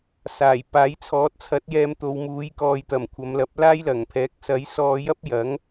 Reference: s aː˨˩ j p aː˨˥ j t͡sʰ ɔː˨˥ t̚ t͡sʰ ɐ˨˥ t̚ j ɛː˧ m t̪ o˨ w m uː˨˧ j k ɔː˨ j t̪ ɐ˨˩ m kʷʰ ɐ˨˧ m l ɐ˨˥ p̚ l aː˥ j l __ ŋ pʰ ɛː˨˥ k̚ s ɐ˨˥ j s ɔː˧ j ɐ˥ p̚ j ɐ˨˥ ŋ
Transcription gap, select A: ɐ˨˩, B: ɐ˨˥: A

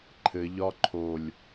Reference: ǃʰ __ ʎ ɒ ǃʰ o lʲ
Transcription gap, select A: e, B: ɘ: B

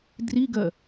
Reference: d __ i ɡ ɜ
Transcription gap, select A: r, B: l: A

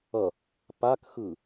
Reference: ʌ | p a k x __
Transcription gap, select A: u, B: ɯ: B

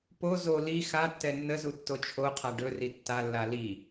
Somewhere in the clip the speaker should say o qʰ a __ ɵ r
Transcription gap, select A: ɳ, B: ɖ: B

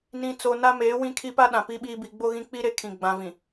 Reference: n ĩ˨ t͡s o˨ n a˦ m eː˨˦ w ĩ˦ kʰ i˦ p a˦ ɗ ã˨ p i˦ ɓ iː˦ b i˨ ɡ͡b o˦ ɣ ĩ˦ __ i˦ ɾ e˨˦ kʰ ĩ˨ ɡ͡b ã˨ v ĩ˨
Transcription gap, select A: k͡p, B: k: A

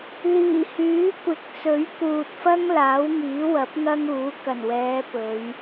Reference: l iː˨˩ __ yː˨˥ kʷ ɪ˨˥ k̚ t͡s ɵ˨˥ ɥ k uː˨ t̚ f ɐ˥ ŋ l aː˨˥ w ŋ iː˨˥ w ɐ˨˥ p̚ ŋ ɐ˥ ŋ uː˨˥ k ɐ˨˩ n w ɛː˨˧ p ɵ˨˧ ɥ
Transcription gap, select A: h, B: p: A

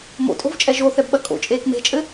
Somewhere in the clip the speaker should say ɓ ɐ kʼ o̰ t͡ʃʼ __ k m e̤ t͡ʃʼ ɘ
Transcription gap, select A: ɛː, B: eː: B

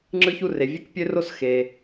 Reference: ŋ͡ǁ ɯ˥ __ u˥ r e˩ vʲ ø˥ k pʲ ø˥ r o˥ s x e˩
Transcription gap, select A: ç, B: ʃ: A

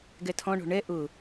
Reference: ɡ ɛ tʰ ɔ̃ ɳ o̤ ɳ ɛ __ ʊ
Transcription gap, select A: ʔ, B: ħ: A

